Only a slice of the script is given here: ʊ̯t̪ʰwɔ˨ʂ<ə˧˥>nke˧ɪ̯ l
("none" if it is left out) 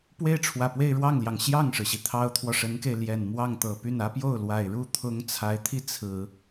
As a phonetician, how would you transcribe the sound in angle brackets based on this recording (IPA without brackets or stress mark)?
ə˧˥